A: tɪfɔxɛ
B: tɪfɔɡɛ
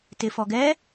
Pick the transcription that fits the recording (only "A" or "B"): B